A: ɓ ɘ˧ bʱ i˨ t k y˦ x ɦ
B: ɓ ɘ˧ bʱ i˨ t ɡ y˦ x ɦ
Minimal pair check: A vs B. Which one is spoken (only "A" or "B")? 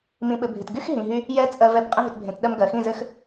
B